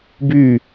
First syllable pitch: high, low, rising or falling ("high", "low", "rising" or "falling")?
falling